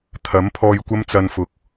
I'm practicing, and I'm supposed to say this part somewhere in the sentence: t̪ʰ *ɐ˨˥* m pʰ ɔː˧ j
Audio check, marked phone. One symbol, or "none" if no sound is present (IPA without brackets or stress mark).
ɐ˨˥